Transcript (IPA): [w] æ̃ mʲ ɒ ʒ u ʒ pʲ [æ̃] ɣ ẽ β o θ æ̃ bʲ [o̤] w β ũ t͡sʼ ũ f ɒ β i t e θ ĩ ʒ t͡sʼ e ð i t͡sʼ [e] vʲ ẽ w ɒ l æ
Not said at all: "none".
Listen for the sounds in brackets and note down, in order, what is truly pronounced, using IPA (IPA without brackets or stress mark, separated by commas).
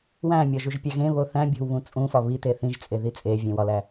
w, æ, o̤, e